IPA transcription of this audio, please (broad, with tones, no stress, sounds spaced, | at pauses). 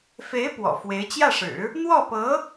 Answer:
f e˧˥ ɪ̯ p w ɔ̰˨˩ f w e˧˥ ɪ̯ t͡ɕ j ä˥˩ ʂ ɻ̩˨˩˦ | n̪ w ɔ˥˩ p ɤ˧˥